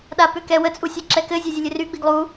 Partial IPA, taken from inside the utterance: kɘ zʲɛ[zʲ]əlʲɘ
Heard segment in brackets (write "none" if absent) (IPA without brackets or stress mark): zʲ